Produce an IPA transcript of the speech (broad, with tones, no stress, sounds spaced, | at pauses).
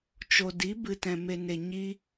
t͡ʃ o˨ d i˨˦ b ɨ˨ t ɛ̃˨ m e˨ n e˨ ɲ i˧